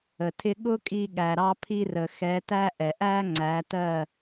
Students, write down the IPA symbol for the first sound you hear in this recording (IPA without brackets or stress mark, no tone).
ə